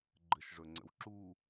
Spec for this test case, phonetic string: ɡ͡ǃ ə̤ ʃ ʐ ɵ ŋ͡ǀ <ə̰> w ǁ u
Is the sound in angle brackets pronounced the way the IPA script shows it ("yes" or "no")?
yes